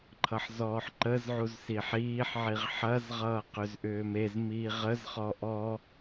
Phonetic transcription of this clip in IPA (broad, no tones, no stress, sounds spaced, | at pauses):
ǃʰ ʌ ħ z ɔː ħ ǃ ə z ʕ u z s i ħ iː ħ ʕ i ʁ ħ ɐ z ʁ ʌː q ʏ z ʔ ʏː m e z m iː ʁ ə z χ ɔ ʔ ɔ